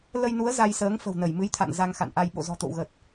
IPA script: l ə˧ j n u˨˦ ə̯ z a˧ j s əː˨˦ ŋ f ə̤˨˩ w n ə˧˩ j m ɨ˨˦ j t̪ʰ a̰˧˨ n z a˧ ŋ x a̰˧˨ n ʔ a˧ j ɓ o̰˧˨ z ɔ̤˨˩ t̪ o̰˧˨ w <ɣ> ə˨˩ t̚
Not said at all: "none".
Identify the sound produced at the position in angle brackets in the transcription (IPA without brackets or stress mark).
ɣ